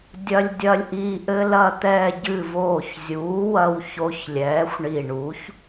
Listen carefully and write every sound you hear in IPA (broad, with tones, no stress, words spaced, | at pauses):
dʲɐ˧lʲdʲɐ˧lʲʔi˧ ʔɘ˧lɐ˧˩t̪ɛː˧˩ ɟɨ˧˩voː˧˩çzʲuː˩˥wɐ˧w ço˧ç lʲɛː˩˥xʷɳi˧˩ ɳu˩˥ç